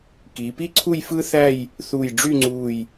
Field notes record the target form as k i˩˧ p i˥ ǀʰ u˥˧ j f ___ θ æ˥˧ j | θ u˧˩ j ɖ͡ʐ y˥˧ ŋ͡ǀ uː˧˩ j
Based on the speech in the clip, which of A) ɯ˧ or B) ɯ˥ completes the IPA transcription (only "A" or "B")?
B